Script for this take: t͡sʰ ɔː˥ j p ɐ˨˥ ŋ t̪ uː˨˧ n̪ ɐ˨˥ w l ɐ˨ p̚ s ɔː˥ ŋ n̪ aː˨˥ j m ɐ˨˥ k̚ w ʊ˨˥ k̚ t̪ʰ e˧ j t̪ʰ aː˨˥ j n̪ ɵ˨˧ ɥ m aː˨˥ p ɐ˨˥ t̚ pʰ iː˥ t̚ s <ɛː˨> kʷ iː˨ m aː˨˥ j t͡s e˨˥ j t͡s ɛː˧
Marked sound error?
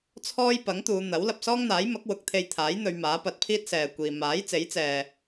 no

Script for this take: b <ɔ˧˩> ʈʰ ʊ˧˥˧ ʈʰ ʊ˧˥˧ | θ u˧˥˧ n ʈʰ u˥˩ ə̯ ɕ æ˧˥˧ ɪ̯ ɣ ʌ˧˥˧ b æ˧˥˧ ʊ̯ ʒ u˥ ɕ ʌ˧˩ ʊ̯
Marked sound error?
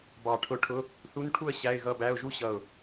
yes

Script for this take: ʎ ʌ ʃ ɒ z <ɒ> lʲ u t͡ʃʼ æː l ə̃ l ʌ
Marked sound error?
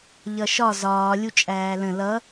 yes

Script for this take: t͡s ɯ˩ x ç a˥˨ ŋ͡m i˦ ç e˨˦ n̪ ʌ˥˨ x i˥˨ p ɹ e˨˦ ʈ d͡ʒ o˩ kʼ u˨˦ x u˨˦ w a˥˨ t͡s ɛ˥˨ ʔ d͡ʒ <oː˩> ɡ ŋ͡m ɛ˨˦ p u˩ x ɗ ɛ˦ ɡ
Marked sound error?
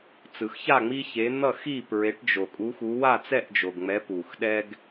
yes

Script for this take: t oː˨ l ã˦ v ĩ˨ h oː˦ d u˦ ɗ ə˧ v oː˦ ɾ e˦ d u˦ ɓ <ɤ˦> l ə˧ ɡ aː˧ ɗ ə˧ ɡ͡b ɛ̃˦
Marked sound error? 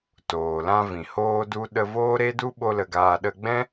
yes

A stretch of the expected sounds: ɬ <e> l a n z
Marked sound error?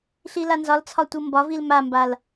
yes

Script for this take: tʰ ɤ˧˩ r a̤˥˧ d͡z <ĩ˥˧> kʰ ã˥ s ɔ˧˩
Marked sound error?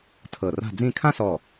no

